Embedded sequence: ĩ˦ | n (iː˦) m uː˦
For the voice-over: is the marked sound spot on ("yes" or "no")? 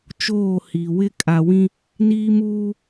yes